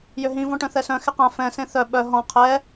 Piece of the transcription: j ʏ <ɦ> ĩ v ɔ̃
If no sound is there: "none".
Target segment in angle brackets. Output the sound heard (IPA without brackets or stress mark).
ɦ